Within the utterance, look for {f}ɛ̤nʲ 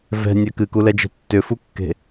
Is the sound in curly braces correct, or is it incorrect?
incorrect